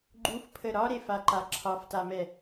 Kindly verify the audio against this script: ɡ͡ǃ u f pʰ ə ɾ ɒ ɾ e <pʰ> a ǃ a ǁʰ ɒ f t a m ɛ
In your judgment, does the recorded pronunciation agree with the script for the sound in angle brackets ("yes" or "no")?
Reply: no